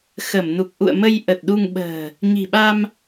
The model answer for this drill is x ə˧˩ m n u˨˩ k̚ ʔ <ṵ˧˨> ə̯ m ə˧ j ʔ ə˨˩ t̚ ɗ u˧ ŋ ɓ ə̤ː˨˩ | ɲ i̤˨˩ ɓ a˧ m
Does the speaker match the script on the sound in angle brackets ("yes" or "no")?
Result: yes